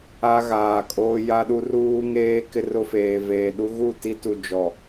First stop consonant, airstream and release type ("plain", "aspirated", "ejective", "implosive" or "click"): ejective